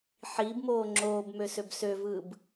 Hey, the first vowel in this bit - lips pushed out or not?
no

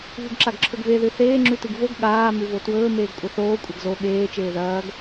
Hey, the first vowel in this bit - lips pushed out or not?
yes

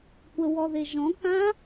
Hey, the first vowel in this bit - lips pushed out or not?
no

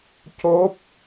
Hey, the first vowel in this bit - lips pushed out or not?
yes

